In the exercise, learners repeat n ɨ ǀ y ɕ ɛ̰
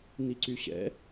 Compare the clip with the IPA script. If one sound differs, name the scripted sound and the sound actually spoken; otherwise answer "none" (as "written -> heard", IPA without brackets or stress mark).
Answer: ɨ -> i